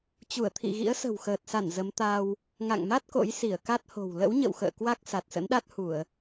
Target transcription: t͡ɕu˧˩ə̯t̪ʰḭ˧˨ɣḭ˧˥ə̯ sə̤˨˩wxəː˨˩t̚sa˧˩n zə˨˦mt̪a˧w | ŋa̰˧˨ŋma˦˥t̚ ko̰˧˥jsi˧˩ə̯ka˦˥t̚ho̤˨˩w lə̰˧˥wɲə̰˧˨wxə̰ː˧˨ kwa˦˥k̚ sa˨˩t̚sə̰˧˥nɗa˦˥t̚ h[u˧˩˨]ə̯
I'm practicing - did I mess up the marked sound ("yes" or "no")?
no